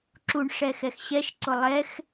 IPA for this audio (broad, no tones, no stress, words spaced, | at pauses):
ǁuɳʂɛxɛx ɕɛʃǀʊ lˠɛx